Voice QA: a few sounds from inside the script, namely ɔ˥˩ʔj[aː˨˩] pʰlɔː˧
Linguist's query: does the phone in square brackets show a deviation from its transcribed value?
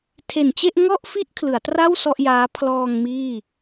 yes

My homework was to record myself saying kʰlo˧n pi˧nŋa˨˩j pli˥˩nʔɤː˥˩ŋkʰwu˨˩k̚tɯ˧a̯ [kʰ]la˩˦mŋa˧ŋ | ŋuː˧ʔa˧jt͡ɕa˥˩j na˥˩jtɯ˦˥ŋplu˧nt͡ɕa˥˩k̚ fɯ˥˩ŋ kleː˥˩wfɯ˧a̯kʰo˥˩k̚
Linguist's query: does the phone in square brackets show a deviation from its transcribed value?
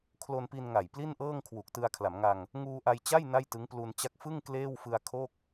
no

